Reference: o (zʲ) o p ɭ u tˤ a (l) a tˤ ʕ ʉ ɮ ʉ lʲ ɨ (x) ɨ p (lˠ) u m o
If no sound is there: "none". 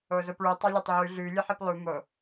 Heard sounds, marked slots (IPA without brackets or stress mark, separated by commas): z, lʲ, ħ, lˠ